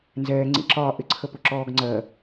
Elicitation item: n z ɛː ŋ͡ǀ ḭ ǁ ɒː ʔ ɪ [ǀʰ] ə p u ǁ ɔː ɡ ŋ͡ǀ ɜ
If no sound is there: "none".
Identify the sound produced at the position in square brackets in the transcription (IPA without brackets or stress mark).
ǀʰ